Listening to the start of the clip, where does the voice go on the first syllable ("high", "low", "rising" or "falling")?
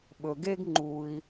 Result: low